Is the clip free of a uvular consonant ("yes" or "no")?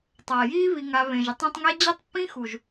yes